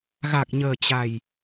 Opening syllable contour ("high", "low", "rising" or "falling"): low